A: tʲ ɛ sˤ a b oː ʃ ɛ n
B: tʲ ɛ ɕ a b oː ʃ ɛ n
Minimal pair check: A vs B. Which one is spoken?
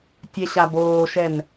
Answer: B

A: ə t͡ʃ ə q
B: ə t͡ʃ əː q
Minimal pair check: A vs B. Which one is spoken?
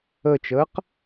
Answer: B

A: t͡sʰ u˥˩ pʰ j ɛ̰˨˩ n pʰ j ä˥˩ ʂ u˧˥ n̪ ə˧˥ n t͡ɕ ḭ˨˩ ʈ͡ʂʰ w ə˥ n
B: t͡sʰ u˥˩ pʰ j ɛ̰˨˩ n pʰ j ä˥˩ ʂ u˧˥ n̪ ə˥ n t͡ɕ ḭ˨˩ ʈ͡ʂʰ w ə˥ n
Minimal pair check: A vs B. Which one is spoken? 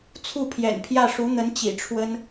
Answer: A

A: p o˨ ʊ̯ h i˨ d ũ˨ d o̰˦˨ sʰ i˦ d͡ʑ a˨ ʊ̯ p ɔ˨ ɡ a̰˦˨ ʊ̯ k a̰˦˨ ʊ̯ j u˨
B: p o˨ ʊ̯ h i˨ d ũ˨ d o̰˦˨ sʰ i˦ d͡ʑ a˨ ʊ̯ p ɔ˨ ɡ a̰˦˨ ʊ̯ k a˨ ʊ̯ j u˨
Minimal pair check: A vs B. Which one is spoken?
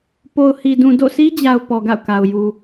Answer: B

